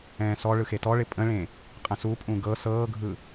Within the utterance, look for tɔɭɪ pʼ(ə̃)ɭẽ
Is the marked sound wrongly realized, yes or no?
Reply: no